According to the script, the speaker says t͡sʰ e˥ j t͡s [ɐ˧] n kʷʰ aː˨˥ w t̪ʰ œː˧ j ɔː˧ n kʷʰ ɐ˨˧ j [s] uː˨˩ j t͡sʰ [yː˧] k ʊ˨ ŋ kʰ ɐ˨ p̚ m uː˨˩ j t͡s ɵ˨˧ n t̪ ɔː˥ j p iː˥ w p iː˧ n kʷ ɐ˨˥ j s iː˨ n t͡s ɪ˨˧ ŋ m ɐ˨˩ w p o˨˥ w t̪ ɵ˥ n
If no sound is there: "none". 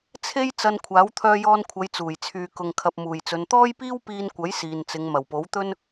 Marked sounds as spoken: ɐ˧, t͡s, yː˨

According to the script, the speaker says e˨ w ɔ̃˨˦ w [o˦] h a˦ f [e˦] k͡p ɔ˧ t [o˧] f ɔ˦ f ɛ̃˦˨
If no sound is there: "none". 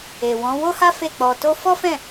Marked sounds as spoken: o˦, e˦˨, o˦

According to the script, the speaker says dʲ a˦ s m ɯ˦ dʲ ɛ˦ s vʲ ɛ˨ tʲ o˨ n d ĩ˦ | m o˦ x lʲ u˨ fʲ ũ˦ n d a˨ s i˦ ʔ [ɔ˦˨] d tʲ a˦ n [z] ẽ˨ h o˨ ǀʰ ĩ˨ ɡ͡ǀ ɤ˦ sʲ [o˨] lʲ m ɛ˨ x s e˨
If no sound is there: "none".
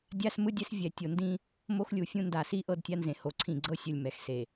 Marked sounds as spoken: ɤ˦˨, z, o˨

